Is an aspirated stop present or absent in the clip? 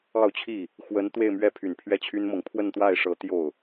present